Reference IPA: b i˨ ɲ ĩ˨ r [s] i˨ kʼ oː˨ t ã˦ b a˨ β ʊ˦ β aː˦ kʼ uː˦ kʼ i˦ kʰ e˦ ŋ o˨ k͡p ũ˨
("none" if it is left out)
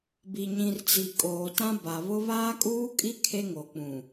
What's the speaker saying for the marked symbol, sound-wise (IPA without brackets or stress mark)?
t͡s